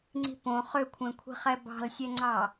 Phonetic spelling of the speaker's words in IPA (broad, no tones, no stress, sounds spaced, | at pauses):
ŋ͡ǀ i̤ p õ χ ʏ kʷʰ ẽ kʷʰ i̤ χ ɛ b ɑ̤ l sʲ ɛ ŋ͡ǀ ɑ